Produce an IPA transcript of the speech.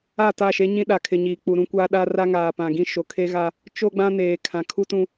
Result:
a˦˨ t a˦˨ ʃ e˦ ɲ ĩ˦ ɗ a˨ kʰ ɪ˨ ɲ iː˨ k͡p u˨ ɾ ũ˦ kʷ aː˦ ɗ a˦ r a˦ ŋ aː˨ p ã˨ ɡ ĩ˦ ʃ o˨ kʰ e˦ ɣ a˦ | t͡ʃ o˦ ɡ͡b ã˦ n eː˨ kʰ ã˨ kʰ u˦ t ũ˦

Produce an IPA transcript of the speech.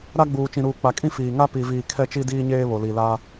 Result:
ɾ a˦ ɡ͡b uː˨ t͡ʃ ĩ˨ ɾ uː˨ k͡p a˨ kʼ ĩ˦ f iː˨ ŋ a˦ p i˨ v iː˨ kʰ ɛ˦ t͡ʃ i˦ d iː˦ ɲ eː˦ β o˨ l i˨ l aː˦

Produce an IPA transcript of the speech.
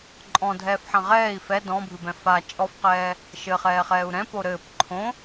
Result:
ǃʼ ɔ̃ dʱ ɛː f ħ ɐ̃ ʁ ɛː i̯ f ɛ d ɔ̃ bʱ ɨ b ɛ̃ f a t͡ʃʼ ɔ f q ɛː | ʃ ɘ χ ɛː χ ɛː u̯ ɾ ɛ̃ p o ɾ ɘː p ǃʰ õ

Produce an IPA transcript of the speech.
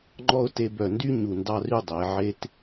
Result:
ŋ͡ǃ ɔ˧ ʊ̯ t e˧ b œ˧˩ n d y˥ ɲ u˧˩ n d ɑ˥˧ r y˥˧ dˤ e˩˧ ʕ e˧ t

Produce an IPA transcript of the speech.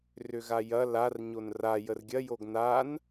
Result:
r ʏ ɣ a j ɐ l a r ɲ o n r a j ə r ɡʲ ɐ j o ɡ n a n

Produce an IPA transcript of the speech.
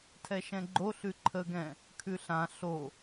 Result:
tʰ ɛ ʃ ɛ̃ ɡ͡ǃ o ɬ ʉ ǃʰ ə ɡ ɛ̃ | kʰ ʉ ɬ ã ɬ o

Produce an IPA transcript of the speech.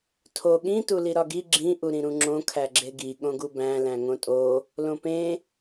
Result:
tʰ o ɠ ĩ t u l i ɾ ɒ ɡ i ɡ͡ǁ ĩ ʔ u ɾ ĩ ɾ ũ ŋ͡ǁ õ kʰ æ ɡ͡ǁ e ɡ i ɠ õ ɡ u b æ̃ l æ̃ ŋ õ tʼ o | l õ p ẽ

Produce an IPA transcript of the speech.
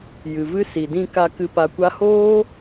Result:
j ɨ˨ v ɨ˦ s i˨ d ĩ˧ k a˧ k ɨ˧ p a˧ kʷ a˦ h oː˦

